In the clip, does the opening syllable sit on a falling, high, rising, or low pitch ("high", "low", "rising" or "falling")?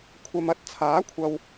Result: low